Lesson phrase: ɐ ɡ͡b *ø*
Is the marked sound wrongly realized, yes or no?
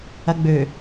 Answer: no